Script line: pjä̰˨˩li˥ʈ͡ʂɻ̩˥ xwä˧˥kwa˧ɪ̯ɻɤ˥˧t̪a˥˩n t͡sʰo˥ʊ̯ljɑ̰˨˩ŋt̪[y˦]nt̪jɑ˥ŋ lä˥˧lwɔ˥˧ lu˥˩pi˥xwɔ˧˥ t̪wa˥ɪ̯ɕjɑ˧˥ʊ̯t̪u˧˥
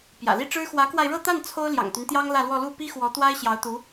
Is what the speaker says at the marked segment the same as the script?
yes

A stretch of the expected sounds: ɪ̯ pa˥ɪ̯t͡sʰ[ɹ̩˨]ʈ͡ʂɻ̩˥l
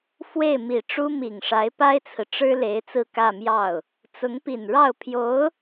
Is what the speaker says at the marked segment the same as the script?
yes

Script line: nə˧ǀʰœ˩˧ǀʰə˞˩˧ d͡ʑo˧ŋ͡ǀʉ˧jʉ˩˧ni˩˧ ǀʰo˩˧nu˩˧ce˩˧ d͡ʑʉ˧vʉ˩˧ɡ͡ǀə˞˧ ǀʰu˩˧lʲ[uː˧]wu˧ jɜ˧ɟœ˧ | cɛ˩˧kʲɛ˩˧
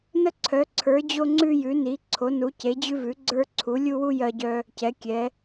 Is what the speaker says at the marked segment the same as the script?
no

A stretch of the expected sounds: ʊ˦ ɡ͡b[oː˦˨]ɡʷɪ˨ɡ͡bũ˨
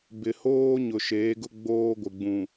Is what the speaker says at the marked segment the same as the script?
no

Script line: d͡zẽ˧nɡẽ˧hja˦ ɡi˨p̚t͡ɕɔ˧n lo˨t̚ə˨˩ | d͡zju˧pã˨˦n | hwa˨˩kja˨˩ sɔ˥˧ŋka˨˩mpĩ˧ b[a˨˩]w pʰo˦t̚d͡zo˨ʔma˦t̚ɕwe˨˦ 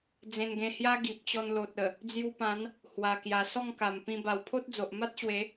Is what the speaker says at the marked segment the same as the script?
yes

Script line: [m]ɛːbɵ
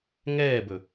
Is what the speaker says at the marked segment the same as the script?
no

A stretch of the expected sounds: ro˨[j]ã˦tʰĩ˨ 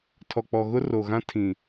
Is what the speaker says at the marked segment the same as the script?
no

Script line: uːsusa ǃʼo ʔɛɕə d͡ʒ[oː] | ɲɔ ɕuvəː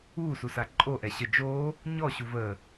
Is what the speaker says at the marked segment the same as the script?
yes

